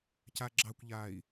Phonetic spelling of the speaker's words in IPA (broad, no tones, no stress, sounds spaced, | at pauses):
c a ɡ͡ǁ ɑ kʷ ʎ aː i̯